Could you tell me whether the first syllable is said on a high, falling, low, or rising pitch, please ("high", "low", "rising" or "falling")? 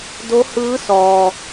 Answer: rising